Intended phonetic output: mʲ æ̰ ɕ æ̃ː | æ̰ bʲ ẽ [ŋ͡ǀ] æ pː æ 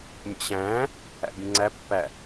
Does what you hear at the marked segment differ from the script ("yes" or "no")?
no